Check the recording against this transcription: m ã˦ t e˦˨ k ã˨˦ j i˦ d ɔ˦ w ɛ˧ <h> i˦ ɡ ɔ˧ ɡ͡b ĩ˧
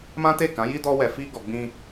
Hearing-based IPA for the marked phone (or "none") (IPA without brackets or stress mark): f